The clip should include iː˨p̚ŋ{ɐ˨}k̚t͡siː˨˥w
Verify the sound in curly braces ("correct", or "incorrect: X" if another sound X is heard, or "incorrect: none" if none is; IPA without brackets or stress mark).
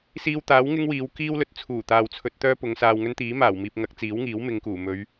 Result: incorrect: ɐ˨˥